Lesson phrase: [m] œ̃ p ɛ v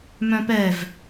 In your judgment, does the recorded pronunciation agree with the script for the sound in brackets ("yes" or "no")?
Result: yes